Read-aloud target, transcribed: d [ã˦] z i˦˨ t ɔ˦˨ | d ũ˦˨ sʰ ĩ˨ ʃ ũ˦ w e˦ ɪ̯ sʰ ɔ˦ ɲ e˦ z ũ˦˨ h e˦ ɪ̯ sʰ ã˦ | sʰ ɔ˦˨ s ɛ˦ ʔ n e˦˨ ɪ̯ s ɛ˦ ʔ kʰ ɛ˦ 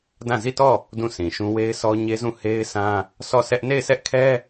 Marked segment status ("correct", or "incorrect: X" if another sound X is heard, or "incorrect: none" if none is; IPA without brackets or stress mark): incorrect: ã˦˨